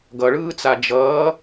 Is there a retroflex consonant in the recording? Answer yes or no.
yes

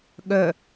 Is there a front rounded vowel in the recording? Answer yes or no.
yes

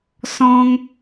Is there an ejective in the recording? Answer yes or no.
no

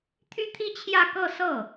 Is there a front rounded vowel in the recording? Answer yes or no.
yes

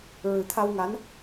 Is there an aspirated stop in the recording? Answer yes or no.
yes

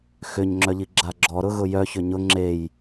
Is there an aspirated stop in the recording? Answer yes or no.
no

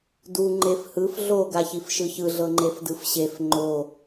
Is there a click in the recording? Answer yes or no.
yes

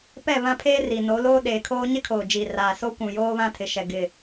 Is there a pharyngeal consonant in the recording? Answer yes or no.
no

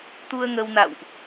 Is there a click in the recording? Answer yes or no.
no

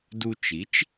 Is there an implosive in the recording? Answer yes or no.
no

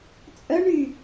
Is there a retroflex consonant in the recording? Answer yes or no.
yes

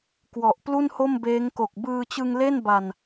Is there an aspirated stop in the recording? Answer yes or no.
no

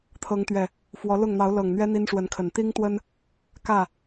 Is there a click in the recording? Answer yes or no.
no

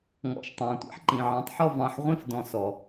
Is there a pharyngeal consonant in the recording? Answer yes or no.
yes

